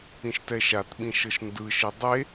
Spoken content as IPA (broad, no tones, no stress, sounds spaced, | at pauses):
ĩ ʃ t ɛ ʃ a t ɓ ĩ ʃ ɤ ʃ n d ɯ ʃ i dˤ e